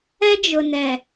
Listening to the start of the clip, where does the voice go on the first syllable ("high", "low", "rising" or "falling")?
high